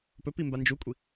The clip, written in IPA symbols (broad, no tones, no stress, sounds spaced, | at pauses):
p ɵ p i m b a n d͡ʒ u kʷʼ i